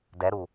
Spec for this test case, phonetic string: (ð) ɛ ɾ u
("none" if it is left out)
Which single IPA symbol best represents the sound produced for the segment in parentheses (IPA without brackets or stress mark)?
d